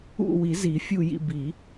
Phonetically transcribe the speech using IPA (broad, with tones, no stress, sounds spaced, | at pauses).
ṵ˦˨ w i˨˩˦ z i˨˩˦ fʲ u˦˨ j ḭ˦˨ b i˨˩˦